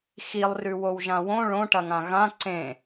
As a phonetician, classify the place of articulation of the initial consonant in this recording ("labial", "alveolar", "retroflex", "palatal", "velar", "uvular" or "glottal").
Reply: velar